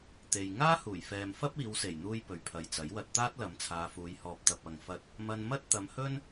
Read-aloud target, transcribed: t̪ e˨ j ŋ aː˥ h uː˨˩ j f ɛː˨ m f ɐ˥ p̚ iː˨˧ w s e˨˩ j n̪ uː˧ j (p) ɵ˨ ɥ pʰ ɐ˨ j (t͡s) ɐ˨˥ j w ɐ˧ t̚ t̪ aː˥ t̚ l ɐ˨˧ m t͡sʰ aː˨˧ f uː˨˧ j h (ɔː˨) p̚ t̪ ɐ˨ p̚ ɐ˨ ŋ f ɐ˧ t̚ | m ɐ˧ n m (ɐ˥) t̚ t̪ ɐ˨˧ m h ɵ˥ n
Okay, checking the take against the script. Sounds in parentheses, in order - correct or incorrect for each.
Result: correct, correct, correct, correct

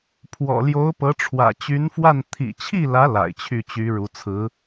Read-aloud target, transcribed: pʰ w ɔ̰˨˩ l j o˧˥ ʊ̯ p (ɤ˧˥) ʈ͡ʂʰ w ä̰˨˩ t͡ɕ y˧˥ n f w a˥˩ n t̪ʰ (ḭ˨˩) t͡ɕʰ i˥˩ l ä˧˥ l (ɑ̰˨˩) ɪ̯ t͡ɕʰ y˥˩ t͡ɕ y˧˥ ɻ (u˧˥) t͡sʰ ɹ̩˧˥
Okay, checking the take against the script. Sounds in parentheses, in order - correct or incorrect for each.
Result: correct, correct, incorrect, correct

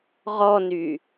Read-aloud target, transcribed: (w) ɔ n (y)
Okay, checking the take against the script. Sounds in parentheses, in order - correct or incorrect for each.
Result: incorrect, correct

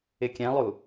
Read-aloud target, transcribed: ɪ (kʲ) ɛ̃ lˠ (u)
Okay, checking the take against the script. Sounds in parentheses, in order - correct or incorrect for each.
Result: correct, correct

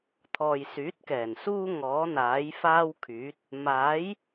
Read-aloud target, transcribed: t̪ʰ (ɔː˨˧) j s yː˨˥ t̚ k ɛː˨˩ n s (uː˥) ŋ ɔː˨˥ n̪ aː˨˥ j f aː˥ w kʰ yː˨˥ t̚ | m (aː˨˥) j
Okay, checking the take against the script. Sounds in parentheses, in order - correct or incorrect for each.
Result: incorrect, correct, correct

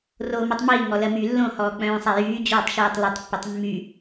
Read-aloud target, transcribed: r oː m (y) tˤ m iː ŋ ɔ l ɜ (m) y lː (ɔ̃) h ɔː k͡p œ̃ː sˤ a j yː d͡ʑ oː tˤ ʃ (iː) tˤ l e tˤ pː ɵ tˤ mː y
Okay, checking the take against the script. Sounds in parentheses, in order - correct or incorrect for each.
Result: incorrect, correct, incorrect, correct

